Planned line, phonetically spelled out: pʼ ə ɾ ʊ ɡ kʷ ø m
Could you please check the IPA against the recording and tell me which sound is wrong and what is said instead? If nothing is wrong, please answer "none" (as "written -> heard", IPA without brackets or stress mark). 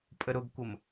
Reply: ø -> ə